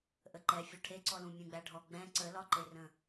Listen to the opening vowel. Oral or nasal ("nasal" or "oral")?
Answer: oral